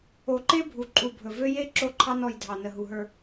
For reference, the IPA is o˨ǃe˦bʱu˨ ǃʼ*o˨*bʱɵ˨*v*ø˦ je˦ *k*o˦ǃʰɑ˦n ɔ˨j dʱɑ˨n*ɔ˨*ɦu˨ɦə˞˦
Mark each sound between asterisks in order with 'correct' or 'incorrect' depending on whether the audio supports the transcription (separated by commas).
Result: incorrect, correct, incorrect, incorrect